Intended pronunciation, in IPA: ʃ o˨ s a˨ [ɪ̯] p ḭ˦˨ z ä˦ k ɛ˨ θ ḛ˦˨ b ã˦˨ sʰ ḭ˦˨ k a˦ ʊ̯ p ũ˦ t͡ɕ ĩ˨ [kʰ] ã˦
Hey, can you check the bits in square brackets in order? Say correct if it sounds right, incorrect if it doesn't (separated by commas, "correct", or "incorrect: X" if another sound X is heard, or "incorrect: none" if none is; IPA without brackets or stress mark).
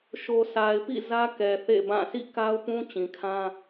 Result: correct, correct